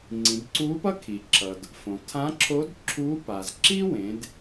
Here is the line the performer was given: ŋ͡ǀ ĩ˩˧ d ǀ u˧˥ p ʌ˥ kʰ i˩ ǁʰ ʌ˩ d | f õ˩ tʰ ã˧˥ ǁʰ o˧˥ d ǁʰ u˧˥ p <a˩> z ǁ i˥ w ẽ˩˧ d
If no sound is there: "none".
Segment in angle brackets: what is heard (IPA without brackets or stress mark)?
a˩